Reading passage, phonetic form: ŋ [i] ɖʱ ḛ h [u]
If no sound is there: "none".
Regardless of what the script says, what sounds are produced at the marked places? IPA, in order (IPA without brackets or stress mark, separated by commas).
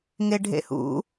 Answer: e, ṵ